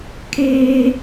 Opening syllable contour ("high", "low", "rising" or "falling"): high